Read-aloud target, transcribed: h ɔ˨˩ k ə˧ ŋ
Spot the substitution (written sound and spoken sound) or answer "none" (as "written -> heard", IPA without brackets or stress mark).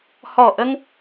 k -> ʔ